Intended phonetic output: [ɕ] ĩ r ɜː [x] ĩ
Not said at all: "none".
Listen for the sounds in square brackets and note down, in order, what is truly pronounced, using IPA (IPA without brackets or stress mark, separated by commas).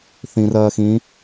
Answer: θ, x